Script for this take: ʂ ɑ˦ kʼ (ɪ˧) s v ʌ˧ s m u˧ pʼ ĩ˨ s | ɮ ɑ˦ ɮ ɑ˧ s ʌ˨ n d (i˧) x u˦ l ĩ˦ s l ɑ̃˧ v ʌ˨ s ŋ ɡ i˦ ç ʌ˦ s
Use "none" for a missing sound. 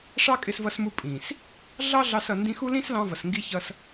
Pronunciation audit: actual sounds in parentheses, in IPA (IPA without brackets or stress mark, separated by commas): ɪ˧, ĩ˧